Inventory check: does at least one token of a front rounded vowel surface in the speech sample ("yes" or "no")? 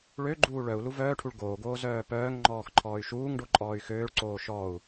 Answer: yes